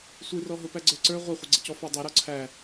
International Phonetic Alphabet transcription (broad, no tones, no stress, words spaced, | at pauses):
sʷirɔɦʊ pæɡ͡ǀə˞ǀə˞ ʁʷæχʷəɡ͡ǀəcɔ fædˤɛɾɔ ǀʰæ